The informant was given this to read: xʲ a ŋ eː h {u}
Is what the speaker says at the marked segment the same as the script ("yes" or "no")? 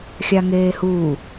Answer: no